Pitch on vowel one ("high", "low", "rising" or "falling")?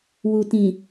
low